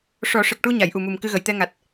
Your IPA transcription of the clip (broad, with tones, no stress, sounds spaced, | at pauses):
ʂ ɔ˨˩˦ ʂ ə˨˩ k̚ ʈ u˧ ɲ a˨˩˨ j ʔ u˨˩ m u˨˩ m k ɨ˧ ɣ ə˨˩˨ j t̪ ɛ˧ ŋ a˨˩ t̚